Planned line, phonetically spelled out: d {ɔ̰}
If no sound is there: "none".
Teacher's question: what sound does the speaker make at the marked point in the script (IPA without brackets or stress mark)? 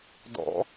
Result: ɔ̰